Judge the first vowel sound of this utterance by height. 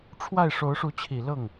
low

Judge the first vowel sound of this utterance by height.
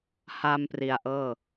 low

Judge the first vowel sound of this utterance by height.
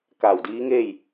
low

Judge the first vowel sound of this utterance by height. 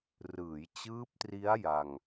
high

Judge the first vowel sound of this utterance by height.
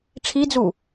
high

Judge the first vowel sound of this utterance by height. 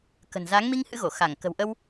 mid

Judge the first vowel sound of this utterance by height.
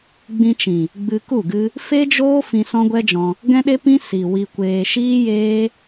high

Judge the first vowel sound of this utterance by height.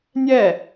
mid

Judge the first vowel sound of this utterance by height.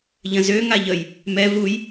mid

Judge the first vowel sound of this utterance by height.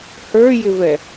mid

